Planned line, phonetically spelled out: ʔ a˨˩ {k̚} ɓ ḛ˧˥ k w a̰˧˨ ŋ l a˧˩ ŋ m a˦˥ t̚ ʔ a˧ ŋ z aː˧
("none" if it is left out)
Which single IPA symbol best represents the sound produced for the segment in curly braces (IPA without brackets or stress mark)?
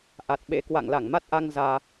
t̚